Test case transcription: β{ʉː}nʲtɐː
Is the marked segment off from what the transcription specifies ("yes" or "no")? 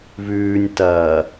no